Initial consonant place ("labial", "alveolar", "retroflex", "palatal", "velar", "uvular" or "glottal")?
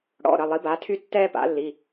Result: retroflex